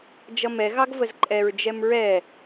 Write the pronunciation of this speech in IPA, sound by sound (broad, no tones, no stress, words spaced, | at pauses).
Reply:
d͡ʒʌmɛ ɣɑɡvəzǃʼɛɹ d͡ʒɛmɹɛ